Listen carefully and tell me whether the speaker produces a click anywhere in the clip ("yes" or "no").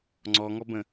yes